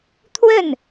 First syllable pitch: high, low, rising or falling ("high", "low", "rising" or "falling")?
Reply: falling